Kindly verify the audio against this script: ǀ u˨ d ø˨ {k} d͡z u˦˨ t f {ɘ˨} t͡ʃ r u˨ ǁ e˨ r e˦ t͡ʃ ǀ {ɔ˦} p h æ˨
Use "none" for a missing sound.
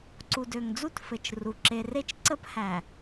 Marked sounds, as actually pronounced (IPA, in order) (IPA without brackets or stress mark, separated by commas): ŋ, ɘ˨, ə˦